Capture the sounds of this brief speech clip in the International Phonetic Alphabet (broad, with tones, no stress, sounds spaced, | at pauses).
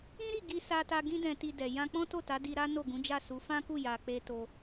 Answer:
ĩ˦ ɾ i˦˨ ɡ i˧ s a˧ t a˧ ɡ ĩ˦ d ɛ̃˧ t i˧ d ɛ˨ j ã˧ k͡p ɔ̃˦ t o˦˨ t a˨˦ d i˧ ɾ a˦ n o˦˨ ɡ ũ˨˦ d͡ʒ a˦˨ s u˨˦ f ã˦ k u˦˨ j a˧ k͡p e˦ t o˦